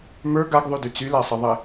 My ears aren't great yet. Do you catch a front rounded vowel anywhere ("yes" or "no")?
yes